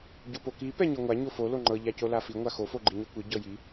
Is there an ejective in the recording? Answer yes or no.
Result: no